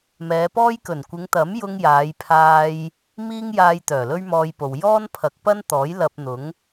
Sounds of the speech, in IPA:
m ɛː˨˧ p ɔː˥ j k ɵ˨˩ n kʷ ɪ˨˧ ŋ t̪ ɐ˨˥ m j ʊ˧ ŋ j aː˨˧ j pʰ aː˧ j | m iː˥ ŋ j aː˧ j t̪ œː˨˩ l ɵ˥ ɥ m ɔː˧ j p o˨ w j ɔː˥ n pʰ ɐ˨˥ k̚ p ɐ˥ n t̪ ɔː˨˥ j l ɐ˧ p̚ n̪ ʊ˨˥ ŋ

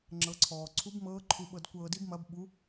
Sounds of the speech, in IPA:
ŋ͡ǁ ɤ˩˧ ǀʰ ɔː˩ ǀʰ u˧˥ b m ɤː˧˥ ǃʰ u˧ ɓ ɤ˧ d kʷ ɤː˧ d i˥ b m ɐ˧˥ b ɓ u˧˥

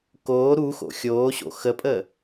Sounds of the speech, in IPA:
k oː ɾ u x o̰ xʲ oː ɕ o̰ x ə pʼ əː

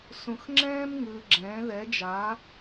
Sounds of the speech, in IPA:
s ũ˧ x ŋ͡ǁ ɛ̃ː˥ m ŋ ɯː˧ ɡ͡ǁ ɛ̃ː˨˥ ð ɛ˨˥ d͡ʒ a˨˥

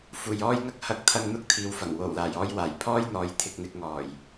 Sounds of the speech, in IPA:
f uː˨ j ɔː˥ j ŋ ɐ˥ k̚ h ɐ˧ k̚ t̪ʰ ɐ˧ ŋ n̪ ʊ˥ k̚ t̪ʰ iː˨˧ w f ɐ˨˩ ŋ w o˨˩ w l aː˨˩ j ɔː˧ j w aː˨˩ j pʰ ɔː˥ j n̪ ɔː˨˥ j t̪ʰ ɪ˨ k̚ n̪ ɪ˧ k̚ ŋ ɔː˨˩ j

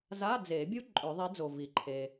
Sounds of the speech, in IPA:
z a˧˥˧ d͡z e˨˩˦ bʲ u˥ ǃʼ ø˨˩˦ ðˤ e˨˥ d͡z o˩ v i˩ ǃʰ e˩

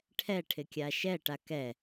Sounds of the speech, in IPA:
ʈʰ ɛ ʈʰ ɪ kʲ a ʃ ɛ ʈ a k ɛ

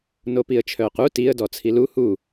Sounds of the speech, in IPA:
n o p i ə̯ t͡ʃʰ œː q u t i ə̯ d ɔ t͡sʰ i l u h u

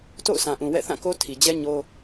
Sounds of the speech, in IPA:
t o̰˦˨ ʊ̯ s ã˨ ʔ ũ˨ w ɛ̰˦˨ θ ã˦˨ k o˦ tʰ i˨ d͡ʑ ɛ˦ ɲ o˦

